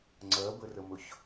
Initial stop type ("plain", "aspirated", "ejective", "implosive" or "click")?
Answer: click